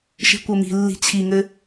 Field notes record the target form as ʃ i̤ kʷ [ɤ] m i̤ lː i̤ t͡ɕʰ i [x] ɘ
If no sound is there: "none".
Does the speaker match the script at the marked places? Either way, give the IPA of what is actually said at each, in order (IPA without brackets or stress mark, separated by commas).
ɤ, ŋ